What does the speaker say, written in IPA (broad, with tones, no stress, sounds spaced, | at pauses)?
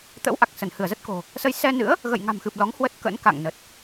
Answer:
t̪ ə̰˧˥ w ʔ a˨˩ k̚ s ə˧˩ n h ɨ˧˩ ə̯ z ə˦˥ t̚ k o̤˨˩ | s ə˧ j s ɛ˧ n ɨ̰˧˥ ə̯ | ɣ ə̰˧˨ j ŋ a̤˨˩ m x ɨ˨˩ p̚ l ɔ˨˦ ŋ h w ə˦˥ t̚ k ə̰˧˥ n k a̰˧˨ ŋ n ə˨˩ t̚